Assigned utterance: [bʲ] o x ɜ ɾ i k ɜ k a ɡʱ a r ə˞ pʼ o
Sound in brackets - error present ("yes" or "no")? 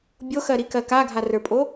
no